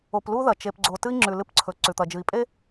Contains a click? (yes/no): yes